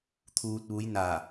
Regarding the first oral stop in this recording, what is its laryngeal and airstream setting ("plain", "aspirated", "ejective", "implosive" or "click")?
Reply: aspirated